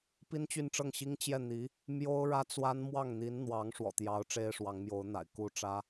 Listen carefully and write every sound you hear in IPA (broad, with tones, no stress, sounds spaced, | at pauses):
p i˥ n t͡ɕ y˥˧ n ʈ͡ʂ ɤ˥˩ ŋ ɕ i˥ ŋ t͡ɕ j ɛ˥˩ n̪ i˧˥ | m j o˥ ʊ̯ ɻ ä˥ t͡s w a˥ n m w ɑ˥˩ ŋ n̪ i˧˥ n n̪ w ɑ˧˥ ŋ ʂ w ɔ̰˨˩ t̪ j ɑ˧˥ ʊ̯ ʈ͡ʂ e˥ ɪ̯ ʂ w ɑ˧˥ ŋ m j o˧˥ ʊ̯ n̪ a̰˨˩ ɪ̯ k u˥˩ ʈ͡ʂ ä˥